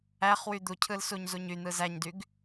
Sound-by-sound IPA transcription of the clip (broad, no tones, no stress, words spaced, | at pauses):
æχ wyd̪ucʰɯl suɲzuɲyn̪ɯ zæɲdyɡ